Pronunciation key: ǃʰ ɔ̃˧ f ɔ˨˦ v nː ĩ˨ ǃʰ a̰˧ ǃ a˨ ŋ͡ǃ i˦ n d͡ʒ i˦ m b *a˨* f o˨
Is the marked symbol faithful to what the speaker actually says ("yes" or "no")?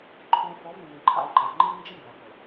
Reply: no